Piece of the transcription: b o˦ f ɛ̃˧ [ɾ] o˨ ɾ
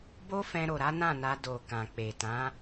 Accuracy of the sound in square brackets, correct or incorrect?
correct